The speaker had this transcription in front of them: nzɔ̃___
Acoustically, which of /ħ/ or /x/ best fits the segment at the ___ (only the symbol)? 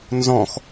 x